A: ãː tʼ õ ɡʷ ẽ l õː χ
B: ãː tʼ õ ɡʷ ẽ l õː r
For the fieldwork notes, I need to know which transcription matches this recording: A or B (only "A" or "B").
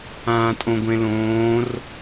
B